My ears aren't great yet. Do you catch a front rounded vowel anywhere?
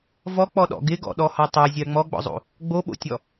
no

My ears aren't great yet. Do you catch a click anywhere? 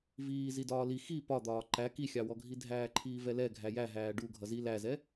yes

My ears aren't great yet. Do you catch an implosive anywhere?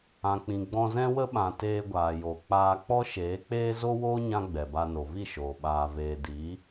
yes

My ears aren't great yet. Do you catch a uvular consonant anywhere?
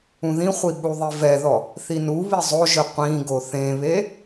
yes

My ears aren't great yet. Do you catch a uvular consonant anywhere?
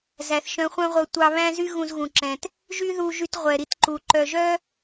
yes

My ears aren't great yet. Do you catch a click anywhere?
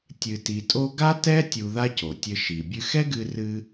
no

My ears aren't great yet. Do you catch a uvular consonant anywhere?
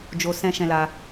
no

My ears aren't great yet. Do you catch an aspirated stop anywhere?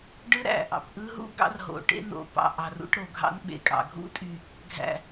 no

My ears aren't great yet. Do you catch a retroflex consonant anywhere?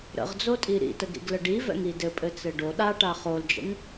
yes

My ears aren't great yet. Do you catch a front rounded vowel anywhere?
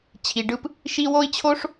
no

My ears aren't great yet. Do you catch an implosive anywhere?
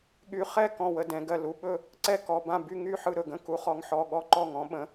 yes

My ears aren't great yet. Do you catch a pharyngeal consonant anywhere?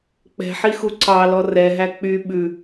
yes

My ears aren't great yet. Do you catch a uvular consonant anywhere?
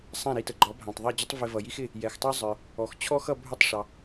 no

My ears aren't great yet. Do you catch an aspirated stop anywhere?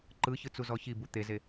no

